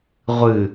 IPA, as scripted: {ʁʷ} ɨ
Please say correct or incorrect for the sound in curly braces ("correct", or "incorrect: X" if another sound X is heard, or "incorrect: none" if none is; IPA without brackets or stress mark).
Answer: correct